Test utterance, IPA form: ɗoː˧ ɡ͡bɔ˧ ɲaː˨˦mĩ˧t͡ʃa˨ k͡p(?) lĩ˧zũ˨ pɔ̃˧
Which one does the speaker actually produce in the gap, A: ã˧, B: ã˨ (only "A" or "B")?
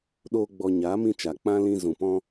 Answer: A